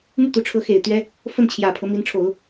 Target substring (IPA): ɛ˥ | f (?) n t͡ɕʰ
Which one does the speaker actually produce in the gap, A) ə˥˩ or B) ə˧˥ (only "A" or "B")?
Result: A